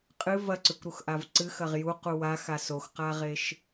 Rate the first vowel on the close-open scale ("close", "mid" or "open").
close